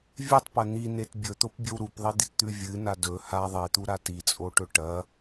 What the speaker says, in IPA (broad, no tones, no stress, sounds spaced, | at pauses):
vʲ e tˤ p ɐ n̪ i n e t bʲ ɵ t̪ o p bʲ ɵ w ɾ u p ðˤ i d̪ i t t̪ ʉ vʲ ɨ n a d ɵ h a ðˤ e t̪ u ɾ a t i t͡sʼ o ʈ ɵ ʈ ɐ